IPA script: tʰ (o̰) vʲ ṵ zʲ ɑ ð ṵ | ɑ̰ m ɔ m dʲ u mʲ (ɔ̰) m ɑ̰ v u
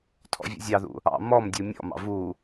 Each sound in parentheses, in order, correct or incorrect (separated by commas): incorrect, correct